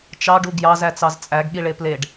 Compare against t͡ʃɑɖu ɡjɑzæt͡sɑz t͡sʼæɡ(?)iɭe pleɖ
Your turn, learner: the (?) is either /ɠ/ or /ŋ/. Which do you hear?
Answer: ɠ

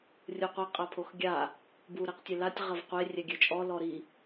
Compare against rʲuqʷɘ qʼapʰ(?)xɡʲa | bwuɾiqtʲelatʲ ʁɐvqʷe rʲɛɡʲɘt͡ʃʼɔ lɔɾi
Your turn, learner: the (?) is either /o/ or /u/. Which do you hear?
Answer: o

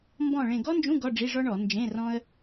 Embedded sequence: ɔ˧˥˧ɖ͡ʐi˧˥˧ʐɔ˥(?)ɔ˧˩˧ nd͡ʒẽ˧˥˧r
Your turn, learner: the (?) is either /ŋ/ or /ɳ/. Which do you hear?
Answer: ɳ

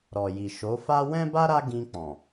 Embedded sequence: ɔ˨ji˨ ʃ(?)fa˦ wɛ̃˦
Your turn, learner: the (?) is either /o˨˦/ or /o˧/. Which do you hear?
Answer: o˨˦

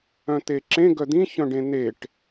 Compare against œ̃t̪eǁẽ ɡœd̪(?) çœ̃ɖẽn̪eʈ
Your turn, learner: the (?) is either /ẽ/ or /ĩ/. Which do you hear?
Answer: ĩ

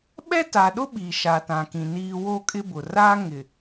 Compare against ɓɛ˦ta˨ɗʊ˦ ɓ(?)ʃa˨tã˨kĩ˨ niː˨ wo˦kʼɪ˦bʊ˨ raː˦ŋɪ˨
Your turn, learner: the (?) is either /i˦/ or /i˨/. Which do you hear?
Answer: i˨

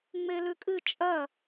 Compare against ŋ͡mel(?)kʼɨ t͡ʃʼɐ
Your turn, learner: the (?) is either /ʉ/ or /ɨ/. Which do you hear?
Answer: ʉ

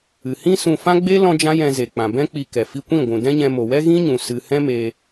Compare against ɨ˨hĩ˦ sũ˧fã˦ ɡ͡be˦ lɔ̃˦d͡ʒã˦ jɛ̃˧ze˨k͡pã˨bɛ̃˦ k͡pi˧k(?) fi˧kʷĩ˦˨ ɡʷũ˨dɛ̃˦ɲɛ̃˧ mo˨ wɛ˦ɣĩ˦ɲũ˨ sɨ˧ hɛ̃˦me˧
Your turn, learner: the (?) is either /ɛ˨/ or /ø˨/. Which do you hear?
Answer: ɛ˨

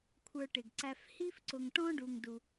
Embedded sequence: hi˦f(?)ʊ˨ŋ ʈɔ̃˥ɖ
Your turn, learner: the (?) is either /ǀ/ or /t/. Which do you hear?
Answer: ǀ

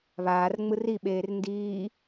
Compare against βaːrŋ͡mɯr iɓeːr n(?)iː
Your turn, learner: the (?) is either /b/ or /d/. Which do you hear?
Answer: d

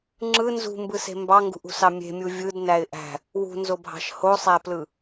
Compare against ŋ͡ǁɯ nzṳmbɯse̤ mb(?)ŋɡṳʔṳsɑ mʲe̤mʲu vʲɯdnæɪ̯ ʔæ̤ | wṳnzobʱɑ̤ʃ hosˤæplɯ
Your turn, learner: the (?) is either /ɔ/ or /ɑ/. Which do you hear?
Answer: ɑ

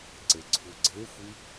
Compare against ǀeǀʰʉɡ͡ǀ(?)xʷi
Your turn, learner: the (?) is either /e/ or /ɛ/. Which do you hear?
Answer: e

